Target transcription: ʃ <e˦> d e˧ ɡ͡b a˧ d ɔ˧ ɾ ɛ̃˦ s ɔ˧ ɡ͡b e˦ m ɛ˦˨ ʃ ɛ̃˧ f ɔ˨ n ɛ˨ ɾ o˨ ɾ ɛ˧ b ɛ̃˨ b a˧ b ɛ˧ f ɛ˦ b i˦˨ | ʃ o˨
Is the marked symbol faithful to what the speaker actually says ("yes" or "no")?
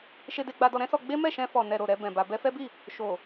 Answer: no